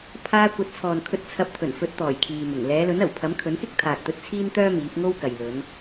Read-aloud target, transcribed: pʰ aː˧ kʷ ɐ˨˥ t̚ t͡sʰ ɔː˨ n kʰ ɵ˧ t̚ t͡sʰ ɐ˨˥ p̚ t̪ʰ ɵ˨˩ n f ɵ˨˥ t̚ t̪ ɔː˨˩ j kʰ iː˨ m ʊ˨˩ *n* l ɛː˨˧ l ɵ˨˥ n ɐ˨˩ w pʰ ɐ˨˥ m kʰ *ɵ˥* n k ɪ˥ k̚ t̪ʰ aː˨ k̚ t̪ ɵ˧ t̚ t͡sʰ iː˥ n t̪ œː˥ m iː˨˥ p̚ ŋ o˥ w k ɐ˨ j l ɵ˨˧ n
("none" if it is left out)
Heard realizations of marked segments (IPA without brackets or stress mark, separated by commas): ŋ, ɵ˨˥